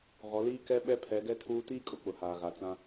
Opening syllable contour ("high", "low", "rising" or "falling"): rising